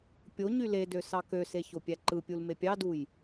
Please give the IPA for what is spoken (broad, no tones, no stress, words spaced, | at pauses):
pʲo ɲyledø sɑkøse çopʲæǃɯpʲul mepʲɑduj